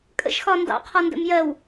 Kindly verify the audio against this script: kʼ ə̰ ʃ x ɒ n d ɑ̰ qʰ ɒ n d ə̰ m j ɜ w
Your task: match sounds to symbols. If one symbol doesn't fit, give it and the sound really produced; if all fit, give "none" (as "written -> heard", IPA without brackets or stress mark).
none